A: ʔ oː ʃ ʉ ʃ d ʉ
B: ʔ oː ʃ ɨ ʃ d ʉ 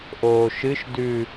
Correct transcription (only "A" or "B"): B